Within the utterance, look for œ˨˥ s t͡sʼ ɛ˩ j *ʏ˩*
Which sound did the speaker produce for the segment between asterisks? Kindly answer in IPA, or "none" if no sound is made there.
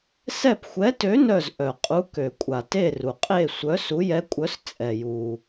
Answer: u˩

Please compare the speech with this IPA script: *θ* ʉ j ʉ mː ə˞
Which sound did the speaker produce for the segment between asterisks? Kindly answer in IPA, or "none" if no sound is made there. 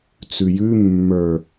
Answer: t͡s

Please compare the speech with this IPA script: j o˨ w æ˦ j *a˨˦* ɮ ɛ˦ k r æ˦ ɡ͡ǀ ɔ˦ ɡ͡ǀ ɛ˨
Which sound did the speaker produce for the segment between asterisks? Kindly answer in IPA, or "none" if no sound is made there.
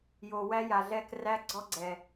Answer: a˨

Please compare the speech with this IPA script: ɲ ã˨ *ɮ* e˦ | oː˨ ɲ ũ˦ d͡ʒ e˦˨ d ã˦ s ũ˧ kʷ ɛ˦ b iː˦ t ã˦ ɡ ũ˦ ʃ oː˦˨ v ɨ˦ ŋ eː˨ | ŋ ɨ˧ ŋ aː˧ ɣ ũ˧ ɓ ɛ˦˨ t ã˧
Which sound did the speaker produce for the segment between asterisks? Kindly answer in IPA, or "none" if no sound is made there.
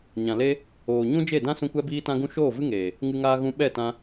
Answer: l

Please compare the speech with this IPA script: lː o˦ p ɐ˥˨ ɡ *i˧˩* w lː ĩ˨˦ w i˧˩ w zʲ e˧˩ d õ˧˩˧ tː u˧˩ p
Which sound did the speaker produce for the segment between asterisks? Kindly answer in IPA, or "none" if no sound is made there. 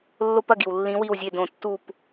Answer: i˩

